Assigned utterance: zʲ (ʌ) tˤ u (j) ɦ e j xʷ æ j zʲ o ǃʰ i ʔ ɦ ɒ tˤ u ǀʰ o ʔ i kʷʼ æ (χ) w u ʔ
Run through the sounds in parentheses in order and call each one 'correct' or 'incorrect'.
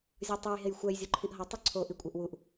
incorrect: ɒ, correct, incorrect: ʔ

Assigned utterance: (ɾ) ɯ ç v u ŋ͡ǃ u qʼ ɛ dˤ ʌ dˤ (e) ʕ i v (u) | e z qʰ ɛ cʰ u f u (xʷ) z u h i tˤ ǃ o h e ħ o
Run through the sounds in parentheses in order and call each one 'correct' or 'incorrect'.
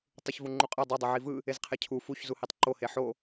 incorrect: tˤ, correct, incorrect: ɯ, incorrect: ç

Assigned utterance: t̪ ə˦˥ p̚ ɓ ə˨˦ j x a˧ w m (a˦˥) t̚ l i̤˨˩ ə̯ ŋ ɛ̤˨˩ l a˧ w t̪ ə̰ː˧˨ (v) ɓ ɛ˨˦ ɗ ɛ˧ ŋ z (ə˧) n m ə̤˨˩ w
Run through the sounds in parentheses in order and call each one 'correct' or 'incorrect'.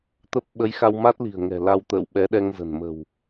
correct, incorrect: w, incorrect: ə̤˨˩

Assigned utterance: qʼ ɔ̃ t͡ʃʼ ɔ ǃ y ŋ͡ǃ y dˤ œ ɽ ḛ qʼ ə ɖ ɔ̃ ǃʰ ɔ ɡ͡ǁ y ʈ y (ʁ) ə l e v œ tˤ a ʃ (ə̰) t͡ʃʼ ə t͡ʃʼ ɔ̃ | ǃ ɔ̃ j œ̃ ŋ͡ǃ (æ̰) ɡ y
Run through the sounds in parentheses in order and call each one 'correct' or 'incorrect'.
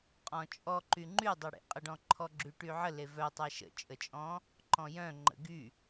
incorrect: ʕ, correct, incorrect: ə̰

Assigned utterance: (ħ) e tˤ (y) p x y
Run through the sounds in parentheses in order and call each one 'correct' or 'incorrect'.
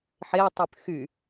correct, correct

